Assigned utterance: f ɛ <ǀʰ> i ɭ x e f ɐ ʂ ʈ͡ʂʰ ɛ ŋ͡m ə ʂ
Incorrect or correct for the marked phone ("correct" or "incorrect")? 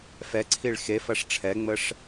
correct